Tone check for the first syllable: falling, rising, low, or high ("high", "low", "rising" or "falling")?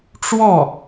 falling